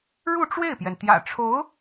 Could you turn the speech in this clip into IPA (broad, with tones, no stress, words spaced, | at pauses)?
ɻu˥˧ʈ͡ʂwe˥˩ɪ̯pjɛ˩n t̪jä̰˨˩ʈ͡ʂʰo˧˥ʊ̯